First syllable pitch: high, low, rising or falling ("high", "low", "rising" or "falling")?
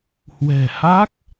low